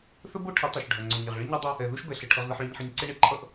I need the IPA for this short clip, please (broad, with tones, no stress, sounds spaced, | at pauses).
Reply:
θ ə˦ b o˦ ʈʰ ɪ˨˦ tˤ ʌ˨ ʃ ɖʱ ɐ˨ ŋ͡ǀ o˨ ɲ ɪ˨ ʁ ɭ ɪ˦ ɲ ɐ˦ dˤ ɐ˦ | ɛ˨ ð u˦ ʃ b ɛ˨ ɬ ə˨ ʈʰ ə˦ ʁ ð ə˦ ħ ɭ e˦ ɲ ħ ɪ˦ ɲ ǀ ɪ˦ ɳ ɪ˦ ǃʰ ʌ˦ ʔ